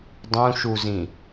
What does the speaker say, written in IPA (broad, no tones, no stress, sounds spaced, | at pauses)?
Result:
dˤ ũ ʃ u z ĩ